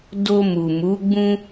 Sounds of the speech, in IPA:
d o˧ m u˨ m u˨˦ ɡ͡b ũ˦

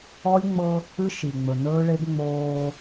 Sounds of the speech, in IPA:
ɔ˦ lʲ ŋ͡m ɤ˦ | ɨ˦ ʃ i˨ ŋ͡m ɵ˨ n ɵː˦ ɭ e˦ ɡ ŋ͡m oː˦

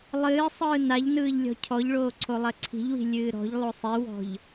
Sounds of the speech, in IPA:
lˠ ɨː sˤ ɯː n a ʎ n ɯː ʎ lʲ ɔ̤ cʰ ɔ ʎ ɭ oː ǀʰ o lˠ ɜ ǀʰ i̤ ʎ w i̤ lʲ ɨː ɾ ɔ̤ ʎ lˠ o sˤ i w ɔ̤ ʎ

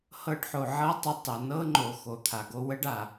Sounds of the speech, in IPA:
h ɤ˦˨ ɖ ħ o˨ ʕ ɤ˦ tˤ ɘ˧ tˤ ə˨ n ɤ˦ ŋ͡ǃ o˨ x o˨ t̪ʰ a˨ ɡ o˦ w ə˦ ɖ a˨

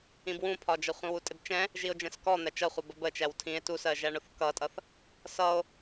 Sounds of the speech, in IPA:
ĩ b w ũ pʰ ɒ d͡ʒ ʌ χʷ ĩ w u tʼ ɪ b t͡ʃ ɛ̃ | ʒ i o̯ d͡ʒ ɛ̃ s k ɔ n̪ æ t͡ʃ ʌ χʷ ʌ b ə b ə t͡ʃ æ w tʰ ĩ e̯ t u s ɜ ʒ æ ɳ ʊ θ k ʌ tʼ ʌ θ | s ʌ o̯

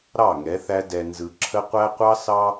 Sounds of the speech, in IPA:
ɾ ɑ˦˨ ŋ ɛ˨˦ θ æ˦ d ɛ˨ n z ɯ˨ ǁʰ ə˦ qʷ æ˦ qʷ ɑ˦ s ɑ˦

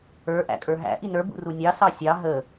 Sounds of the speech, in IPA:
ə˞ ʔ æ̰ kʼ ə˞ ɦ æ̰ ʔ i n ə˞ b ṵ r u nʲ ɑ s ɑ sʲ ɑ ɦ ə

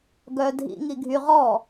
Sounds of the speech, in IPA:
ɡ œ dʱ ḭ ŋ i ɡʱ y ʁ ɔ

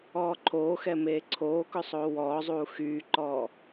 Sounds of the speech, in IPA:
ɔː ǃʰ oː x ɛ m eː ǀʰ oː k ɵ sˤ oː w ɔː zˤ uː x yː ǃ ɔː

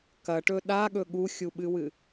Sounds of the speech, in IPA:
k ɐ ʈ ɵ ɗ a ɠ ɵ ɠ u xʲ u ɓ ɨ w ɨ

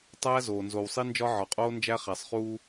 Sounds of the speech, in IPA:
tˤ æː˦ z oː˨ n z o˨ w sˤ i˦ n d͡ʒ ɒ˦ ʕ ɒ˨ qʼ oː˦ n d͡ʒ æ˦ χ æ˨ sˤ χ uː˦

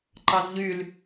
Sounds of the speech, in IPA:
ǃ ɑ z ʎ y l

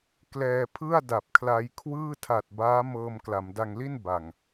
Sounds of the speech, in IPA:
k l ɛː˧ pʰ ɯ˥˩ a̯ d a˨˩ p̚ kʰ l a˧ j kʰ w ɯː˥˩ tʰ a˨˩ t̚ b aː˦˥ m ɤː˧ m k l a˩˦ m d a˧ ŋ l i˥˩ n b a˨˩ ŋ

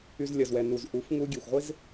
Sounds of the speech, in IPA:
y˧ z lʲ ɐ˨ z w ɛ˨ n u˨ z ʔ u˨˦ f ŋ u˦ ɡʲ e˨ xʷ ʁʷ ɪ˦ z

